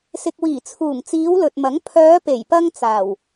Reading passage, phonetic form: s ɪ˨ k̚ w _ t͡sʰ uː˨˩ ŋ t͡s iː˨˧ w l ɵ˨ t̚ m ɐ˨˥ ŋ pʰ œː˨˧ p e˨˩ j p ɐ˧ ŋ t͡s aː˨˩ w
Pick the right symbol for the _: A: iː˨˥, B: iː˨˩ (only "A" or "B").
B